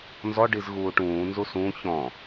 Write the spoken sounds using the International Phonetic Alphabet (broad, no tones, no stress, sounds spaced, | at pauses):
n z ɔ ɖ i z ɣ uː ʈ ũː n z u s ũ ç ɔ̃